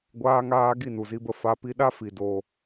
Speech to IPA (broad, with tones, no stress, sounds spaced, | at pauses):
ɡʷ aː˧ ŋ aː˧ ɡ i˦˨ n u˨ z i˧ b ə˧ f a˧ p i˧ ɗ a˦ f i˨ d o˧